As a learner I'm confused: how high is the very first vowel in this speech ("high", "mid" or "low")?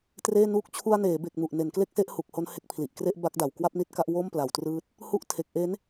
mid